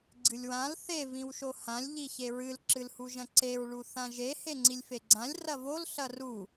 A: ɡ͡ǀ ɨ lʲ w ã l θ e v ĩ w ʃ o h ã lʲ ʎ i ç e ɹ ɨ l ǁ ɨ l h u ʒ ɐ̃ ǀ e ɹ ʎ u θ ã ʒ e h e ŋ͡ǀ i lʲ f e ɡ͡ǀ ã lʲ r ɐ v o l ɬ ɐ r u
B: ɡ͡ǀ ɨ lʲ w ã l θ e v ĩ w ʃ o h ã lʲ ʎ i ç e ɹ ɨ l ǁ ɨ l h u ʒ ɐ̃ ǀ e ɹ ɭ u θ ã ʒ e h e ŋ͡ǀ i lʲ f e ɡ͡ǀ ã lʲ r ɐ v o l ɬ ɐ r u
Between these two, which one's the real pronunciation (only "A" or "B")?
B